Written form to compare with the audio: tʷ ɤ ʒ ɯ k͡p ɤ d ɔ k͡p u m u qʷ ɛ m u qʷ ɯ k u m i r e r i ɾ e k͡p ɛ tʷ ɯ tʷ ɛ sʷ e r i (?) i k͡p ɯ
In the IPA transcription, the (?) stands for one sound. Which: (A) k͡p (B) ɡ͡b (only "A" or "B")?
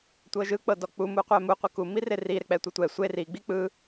B